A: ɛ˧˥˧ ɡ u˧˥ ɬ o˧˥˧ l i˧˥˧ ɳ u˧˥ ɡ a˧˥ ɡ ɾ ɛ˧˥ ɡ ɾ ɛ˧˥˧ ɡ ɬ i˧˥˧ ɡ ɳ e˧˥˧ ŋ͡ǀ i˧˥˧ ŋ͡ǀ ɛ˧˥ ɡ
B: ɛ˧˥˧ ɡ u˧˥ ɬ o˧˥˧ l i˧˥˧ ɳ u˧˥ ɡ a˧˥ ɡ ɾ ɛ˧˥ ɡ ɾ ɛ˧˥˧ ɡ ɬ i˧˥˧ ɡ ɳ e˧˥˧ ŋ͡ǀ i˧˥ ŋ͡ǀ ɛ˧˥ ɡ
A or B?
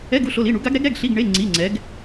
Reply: A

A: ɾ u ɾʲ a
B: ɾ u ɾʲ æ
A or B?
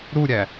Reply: B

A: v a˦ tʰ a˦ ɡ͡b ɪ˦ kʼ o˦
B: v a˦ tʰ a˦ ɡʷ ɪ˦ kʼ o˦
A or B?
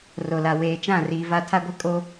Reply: B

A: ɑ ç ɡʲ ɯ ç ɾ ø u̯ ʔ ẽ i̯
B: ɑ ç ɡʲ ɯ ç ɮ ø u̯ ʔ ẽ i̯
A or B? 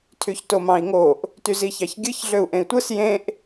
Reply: B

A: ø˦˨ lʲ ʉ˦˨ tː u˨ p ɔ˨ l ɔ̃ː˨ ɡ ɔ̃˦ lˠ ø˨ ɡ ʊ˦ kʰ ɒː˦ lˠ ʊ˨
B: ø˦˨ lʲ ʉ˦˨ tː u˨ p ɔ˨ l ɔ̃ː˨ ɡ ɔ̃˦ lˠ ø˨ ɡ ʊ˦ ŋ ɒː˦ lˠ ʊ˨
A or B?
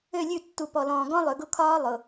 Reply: A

